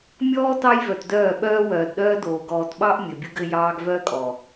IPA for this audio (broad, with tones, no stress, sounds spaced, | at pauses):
mʲ ɔː˦ t ɑ˦ j v œ˨ t d œː˦˨ ɓ œː˦ w œː˨ d ɗ œː˦ d oː˨ ɡ ɔː˨ t ɓ ɑ˦ ʔ mʲ ɘ˨ bʲ u˦ ɡ ɘ˦ j ɑː˦ ɡ v œː˦ kʼ ɔ˨